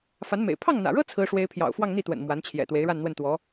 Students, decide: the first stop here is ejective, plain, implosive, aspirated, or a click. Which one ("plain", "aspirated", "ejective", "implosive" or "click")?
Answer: aspirated